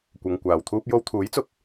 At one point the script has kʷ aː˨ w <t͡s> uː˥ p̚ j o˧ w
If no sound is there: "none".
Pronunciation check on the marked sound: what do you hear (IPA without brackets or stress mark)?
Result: t̪ʰ